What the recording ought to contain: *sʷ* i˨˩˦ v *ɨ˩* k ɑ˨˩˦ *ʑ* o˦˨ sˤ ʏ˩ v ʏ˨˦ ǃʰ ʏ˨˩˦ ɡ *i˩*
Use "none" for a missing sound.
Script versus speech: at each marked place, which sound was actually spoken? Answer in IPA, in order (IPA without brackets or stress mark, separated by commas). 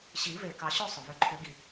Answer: ɕ, e˩, ɕ, i˩